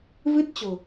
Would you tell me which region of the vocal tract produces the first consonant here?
lips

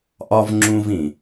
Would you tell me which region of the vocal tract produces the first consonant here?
throat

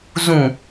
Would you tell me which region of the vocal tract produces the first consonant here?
tongue tip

